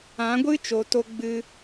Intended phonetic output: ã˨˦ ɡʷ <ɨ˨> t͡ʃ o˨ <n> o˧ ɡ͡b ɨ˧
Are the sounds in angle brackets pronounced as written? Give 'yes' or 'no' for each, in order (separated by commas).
no, no